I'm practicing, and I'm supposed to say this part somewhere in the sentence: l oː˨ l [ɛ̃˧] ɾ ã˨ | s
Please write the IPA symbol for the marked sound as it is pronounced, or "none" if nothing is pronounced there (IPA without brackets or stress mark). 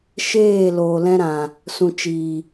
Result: ɛ̃˧